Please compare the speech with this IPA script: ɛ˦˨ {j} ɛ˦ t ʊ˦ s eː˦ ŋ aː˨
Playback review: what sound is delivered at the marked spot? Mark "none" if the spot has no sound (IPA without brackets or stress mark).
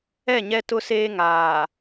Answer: ɲ